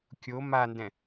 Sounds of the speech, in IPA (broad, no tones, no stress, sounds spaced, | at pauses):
kʲ o m a n d ɛ̃